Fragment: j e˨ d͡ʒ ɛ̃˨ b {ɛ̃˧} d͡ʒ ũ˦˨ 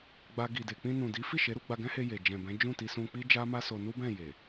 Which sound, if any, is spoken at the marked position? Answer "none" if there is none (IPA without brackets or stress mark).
ɛ̃˨˦